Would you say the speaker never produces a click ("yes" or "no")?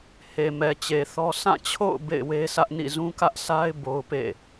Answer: yes